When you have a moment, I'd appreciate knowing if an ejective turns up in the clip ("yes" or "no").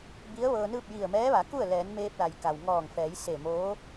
no